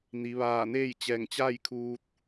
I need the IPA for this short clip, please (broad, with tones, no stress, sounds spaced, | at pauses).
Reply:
n i˩˧ ʋ aː˧˩ n eː˥˨ j t͡ɕ ɛː˧˩ ŋ t͡ɕ a˥˨ j kʰ uː˧ t̚